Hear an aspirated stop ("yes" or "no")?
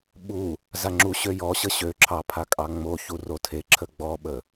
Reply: yes